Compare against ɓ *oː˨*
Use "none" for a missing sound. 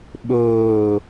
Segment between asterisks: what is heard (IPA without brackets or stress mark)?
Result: oː˨